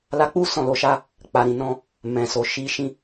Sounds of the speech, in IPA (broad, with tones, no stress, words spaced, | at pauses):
la˧k͡pu˦ sɔ̃˦˨lo˧ʃa˦ | k͡pa˨ɾĩ˨nɔ̃˧ | mɛ̃˨so˨ ʃi˧ ʃĩ˦